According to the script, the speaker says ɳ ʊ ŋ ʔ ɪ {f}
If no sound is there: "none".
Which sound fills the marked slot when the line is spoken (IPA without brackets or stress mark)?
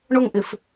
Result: f